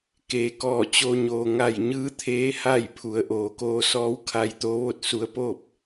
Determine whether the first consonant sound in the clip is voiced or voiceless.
voiceless